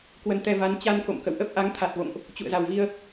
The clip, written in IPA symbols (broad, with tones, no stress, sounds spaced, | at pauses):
k w ə˧ n t̪ ɛ˧ v a˨˦ n t͡ɕ a˧ n k o̰˧˨ m k ə̰˧˨ w ʔ ə˦˥ p̚ ʔ a˨˦ ŋ t̪ʰ a˨˩ t̚ v o̰˧˨ ŋ ʔ | t͡ɕ ṵ˧˨ ə̯ z a˨˩ w v i˧ ə̯